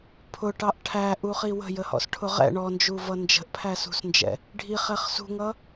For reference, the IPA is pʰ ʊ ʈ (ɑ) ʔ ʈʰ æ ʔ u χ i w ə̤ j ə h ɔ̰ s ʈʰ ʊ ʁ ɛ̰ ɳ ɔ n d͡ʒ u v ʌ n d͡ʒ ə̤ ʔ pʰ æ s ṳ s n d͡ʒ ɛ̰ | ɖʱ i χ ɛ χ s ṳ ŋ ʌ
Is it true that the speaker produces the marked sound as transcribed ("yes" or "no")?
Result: yes